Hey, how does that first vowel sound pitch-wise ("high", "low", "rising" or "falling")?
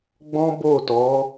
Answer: high